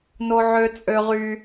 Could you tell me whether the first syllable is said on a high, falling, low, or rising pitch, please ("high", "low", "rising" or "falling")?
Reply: high